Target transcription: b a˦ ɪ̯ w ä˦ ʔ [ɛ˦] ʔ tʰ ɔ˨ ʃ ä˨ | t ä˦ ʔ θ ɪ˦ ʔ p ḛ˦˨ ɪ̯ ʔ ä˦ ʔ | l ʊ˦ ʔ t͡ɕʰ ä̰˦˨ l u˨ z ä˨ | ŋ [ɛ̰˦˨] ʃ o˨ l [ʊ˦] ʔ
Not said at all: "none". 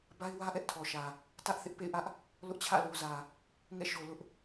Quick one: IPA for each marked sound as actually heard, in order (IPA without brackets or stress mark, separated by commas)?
ɛ˦, ɛ̰˦˨, ʊ˦